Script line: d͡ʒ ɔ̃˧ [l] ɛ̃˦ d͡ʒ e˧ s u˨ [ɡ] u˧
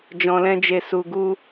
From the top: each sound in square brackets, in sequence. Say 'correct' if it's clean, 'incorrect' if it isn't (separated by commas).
correct, correct